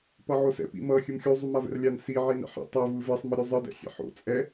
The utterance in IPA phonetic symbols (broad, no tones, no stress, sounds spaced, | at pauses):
p ʌ ʕ o s ɛ̰ p ḭ m ʌ xʲ ɯ m xʲ u zˤ u m a v ɛ̰ r lʲ a n s i ʕ i n ɛ̰ ħ ḭ tˤ e v ɯ v e sˤ m ʌ ɾʲ u zˤ ɯ d ɛ̰ xʲ ɛ̰ ħ o̰ t͡sʼ ɛ